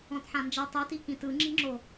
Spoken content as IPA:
ɔ̃tħãnd͡ʒɤ tˤiti kĩtɯ ŋ͡ǁi̤ŋ͡ǁo

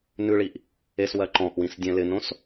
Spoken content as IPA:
nʉɭiʔ | eswɜ ǃɔ̃ʔwĩsdʲɛ̃ lɪnõs

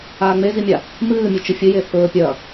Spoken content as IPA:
aːŋ͡mezimʲa | mɨːmʲɵ t͡ʃɨfʲɨje θɵːpʲɐ

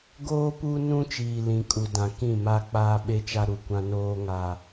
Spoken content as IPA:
ɡoː˦pu˦nũ˦ t͡ʃiː˨lĩ˨kʼu˨dã˨ kĩ˦˨ma˦ k͡paː˦ɓe˦t͡ʃa˦ ɾu˨kʷã˦noː˦ ŋa˨

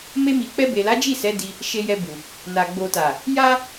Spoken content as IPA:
me˧mi˨ k͡pɛ˧be˨la˨˦ d͡ʒi˦˨sɛ˨˦di˧ | ʃe˧jɛ˧bu˨ | na˨ ɡ͡bo˨ta˨ | ja˦

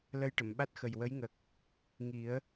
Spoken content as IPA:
lə˧jʈə˨˩˨mɓa˦˥t̚xə˨˩j wə˧˥jŋə˨˩k̚ | ŋi˨˩˦ə̯

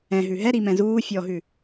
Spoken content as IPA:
ɛ̃ɦʉ ɦɛɾimɛ̃ zuː fʲɔɦʉ

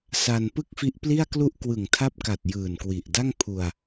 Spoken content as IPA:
sa˧n pɯ˥˩k̚fi˦˥ʔpli˥˩a̯klu˥˩ʔ kwɯ˨˩ŋtʰa˥˩p̚ka˨˩t̚ jɯː˨˩nkwi˨˩ʔ da˥˩ŋpʰu˧a̯

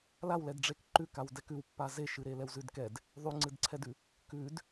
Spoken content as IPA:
lawlɛdɖ͡ʐek ǃʉkaw dɛkʉwpːa zeʃɨɾe lɛwzʉdkɛd | ðˤʉŋ͡ǀɨdǀʰɛdʉ | kʉd

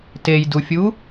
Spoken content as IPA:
tejdufʲu

